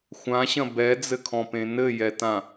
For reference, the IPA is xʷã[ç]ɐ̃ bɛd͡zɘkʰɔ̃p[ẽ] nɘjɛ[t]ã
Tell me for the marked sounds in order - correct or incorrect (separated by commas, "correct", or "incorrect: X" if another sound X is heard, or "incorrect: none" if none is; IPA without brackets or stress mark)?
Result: incorrect: ɕ, correct, correct